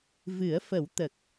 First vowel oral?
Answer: yes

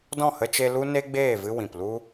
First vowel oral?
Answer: no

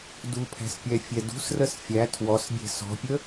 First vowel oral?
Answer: yes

